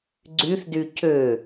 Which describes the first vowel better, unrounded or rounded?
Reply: rounded